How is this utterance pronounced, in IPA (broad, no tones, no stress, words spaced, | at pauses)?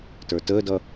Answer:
tə˞təːdʌ